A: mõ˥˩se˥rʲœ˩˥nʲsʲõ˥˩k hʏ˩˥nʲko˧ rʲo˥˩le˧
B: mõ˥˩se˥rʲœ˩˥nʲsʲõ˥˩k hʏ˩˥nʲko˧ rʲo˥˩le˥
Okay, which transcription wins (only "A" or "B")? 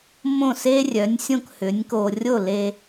A